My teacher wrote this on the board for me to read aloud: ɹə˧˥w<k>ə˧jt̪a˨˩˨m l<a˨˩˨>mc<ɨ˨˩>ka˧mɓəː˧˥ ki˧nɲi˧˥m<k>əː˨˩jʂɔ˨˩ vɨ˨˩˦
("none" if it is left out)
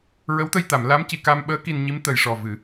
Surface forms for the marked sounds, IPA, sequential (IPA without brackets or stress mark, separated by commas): t̪, a˧˥, i˨˩, t̪